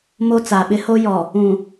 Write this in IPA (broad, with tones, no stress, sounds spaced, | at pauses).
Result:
m o˦ t͡s a˨ ɓ ɪ˦ h o˦ j ɔ˨ | ũ˨